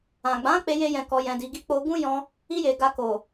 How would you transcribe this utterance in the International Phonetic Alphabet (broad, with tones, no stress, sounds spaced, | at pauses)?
ã˨ ɡ͡b ã˨˦ k͡p e˦ j e˦ j ɛ̃˧ k ɔ˧ j ɛ̃˧ d i˧ ɡ i˦ k͡p o˧ ɡ ũ˦ j ɔ̃˧ | i˦ j e˧ ɡ a˧ k o˨